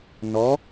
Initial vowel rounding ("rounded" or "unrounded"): rounded